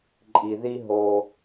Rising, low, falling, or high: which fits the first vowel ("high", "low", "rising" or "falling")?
low